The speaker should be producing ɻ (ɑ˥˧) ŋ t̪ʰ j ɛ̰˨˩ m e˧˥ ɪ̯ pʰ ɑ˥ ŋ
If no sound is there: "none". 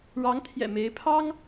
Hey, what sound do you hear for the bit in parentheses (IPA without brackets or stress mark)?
ɑ˧˥